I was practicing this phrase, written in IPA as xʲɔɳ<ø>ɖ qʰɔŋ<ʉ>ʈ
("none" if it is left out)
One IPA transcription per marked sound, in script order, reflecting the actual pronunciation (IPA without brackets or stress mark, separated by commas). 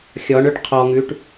ø, ʉ